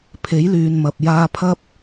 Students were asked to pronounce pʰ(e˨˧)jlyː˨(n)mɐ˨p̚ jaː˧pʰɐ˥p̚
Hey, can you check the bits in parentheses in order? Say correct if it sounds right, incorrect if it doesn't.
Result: incorrect: e˨˥, correct

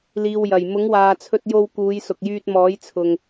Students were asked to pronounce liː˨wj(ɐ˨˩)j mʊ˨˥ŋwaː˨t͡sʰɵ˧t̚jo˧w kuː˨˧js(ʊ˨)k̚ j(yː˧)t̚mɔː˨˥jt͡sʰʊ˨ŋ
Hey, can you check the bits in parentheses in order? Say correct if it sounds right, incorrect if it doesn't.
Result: correct, correct, correct

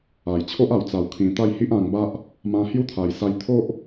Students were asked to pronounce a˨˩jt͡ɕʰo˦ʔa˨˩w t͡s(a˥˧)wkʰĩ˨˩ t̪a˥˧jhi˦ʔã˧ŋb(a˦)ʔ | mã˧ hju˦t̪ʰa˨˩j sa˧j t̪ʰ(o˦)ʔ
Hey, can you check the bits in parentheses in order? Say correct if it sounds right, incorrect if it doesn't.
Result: incorrect: a˨˩, correct, correct

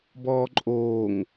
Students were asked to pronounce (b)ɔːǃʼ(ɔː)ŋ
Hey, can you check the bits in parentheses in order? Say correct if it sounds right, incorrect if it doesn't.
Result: correct, incorrect: oː

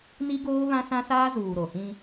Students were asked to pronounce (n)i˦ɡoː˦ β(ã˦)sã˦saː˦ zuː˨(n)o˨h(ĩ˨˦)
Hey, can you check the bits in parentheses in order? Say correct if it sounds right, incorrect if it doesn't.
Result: correct, correct, incorrect: ɾ, incorrect: ĩ˦

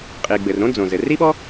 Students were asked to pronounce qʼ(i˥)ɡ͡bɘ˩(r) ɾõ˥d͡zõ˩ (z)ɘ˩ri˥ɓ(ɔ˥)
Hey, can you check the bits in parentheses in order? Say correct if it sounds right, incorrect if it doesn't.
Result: incorrect: i˩, correct, correct, correct

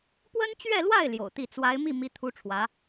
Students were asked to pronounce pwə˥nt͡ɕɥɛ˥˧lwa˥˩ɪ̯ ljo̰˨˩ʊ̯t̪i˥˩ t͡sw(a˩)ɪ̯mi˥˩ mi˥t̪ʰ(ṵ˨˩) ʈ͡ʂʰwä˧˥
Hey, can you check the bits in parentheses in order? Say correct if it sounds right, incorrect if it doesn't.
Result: incorrect: a˧˥, incorrect: u˥

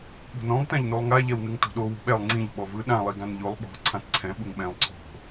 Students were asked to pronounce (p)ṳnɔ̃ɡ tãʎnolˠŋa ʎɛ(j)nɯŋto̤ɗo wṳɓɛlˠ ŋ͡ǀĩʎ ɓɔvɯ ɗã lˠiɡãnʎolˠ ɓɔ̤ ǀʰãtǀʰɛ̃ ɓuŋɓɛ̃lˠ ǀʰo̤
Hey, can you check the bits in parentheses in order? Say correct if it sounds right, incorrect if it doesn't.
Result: incorrect: ɓ, incorrect: w

